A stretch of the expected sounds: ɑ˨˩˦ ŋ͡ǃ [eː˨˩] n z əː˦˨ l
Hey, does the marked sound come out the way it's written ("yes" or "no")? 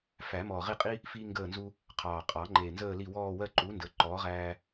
no